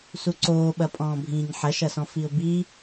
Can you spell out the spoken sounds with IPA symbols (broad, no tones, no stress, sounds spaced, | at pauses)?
s u ǀ oː ɓ ɐ pʼ ɔ̃ː bʱ ĩː ɲ ħ ɐ ʃ ɐ s ɔ̃ f i ʊ̯ b i